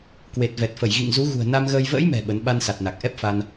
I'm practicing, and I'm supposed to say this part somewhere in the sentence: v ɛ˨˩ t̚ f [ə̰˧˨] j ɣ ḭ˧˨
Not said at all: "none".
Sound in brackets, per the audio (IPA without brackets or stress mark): ə˧˩